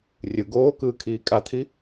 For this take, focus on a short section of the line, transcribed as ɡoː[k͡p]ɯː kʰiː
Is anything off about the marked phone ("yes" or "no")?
yes